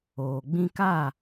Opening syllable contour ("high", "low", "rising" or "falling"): low